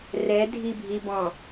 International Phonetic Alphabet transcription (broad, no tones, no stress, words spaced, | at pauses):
rɛdʱibʱi bɔ̃